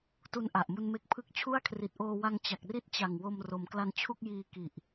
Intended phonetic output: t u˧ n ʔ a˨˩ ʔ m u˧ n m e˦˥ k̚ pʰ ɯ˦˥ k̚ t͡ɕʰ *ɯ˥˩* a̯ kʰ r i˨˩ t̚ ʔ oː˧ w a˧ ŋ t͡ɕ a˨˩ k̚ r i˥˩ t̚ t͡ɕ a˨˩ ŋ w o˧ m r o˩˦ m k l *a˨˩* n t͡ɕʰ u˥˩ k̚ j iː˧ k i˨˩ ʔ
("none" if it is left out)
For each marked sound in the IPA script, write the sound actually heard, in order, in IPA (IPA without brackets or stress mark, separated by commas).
u˥˩, a˧